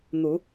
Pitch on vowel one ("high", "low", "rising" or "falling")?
rising